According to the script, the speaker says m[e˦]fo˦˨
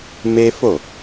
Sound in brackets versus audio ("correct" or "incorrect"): correct